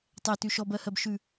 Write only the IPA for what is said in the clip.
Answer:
tˤ ɛ t ʉ ʃ ɔ b ɜ h ɜ b ʃ ʉ

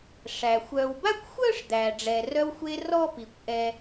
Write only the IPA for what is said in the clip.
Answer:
ʂ æ˩ xʷ œː˨ w b a˥ kʷ xʷ œː˥ ʂ d̪ æː˩ ɖ͡ʐ ɛ˩ r œ˦ w xʷ e˦ r ɔ˥ p i˩ kʷ ʔ ɛ˨

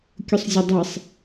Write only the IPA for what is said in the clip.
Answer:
kʲ ʊ sˤ zʲ ɐ dˤ e sˤ

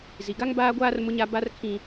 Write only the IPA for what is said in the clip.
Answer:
z i˨ ɡ a˦ ŋ b aː˦ ɡʷ aː˦ r m ʊ˦ ɲ a˦ b a˦ r kʰ ĩ˦

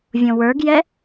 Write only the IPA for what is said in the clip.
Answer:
vʲ õ w ə˞ ɡ j ɛ

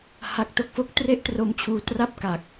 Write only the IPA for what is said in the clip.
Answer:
h a˦˥ k̚ t o˥˩ k̚ f o˦˥ k̚ t r e˥˩ ʔ t r o˧ m t͡ɕʰ uː˧ t r a˥˩ p̚ k a˨˩ k̚

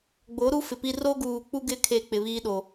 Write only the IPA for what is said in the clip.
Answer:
ɡ͡b o˨˦ ɾ u˦ f ɪ˨ p i˦ r o˦ ɡ uː˨ k͡p u˦ ɡ ɪ˦˨ kʰ e˦˨ k͡p ɪ˨ β iː˦ ɗ o˨

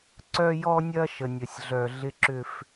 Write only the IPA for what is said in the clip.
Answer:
ǀ œ˦ j ɔ˦ nʲ ɐ˦ ʃ ə˨ nʲ ə˨ sʲ ɮ œ˨ ɮ ɪ˦ ǁ ʏ˦ f

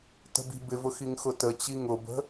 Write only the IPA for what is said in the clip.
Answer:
t ə̤ b i̤ b ɪ v ʊ x i ŋ x ʊ t ə t͡ɕ i ŋ ʊ b ə̤

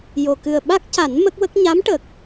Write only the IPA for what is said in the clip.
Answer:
j o˨˩ k ɨ˨˩ ə̯ ɓ a˦˥ k̚ c a˨˩˦ n m ə˦˥ k̚ w ə˦˥ k̚ ɲ a˧˥ m ʈ ə˨˩ k̚

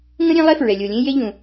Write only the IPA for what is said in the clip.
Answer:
ŋ ə̃˥ ɾʲ ẽ˥ lˠ e˥ f ɹ ɛ˧ lʲ o˧ lʲ ẽ˥ j e˥ ʎ ũ˧

